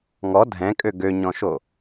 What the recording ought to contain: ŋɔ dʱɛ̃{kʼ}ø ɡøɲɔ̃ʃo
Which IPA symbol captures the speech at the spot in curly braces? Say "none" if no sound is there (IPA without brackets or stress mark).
kʼ